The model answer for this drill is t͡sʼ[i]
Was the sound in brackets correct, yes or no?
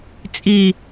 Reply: yes